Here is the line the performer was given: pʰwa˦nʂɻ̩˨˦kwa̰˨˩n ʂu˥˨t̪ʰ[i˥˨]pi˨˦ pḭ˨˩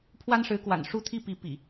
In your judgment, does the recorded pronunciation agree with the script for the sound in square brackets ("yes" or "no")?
yes